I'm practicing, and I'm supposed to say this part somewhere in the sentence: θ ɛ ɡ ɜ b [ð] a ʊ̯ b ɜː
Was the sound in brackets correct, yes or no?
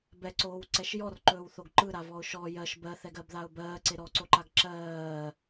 yes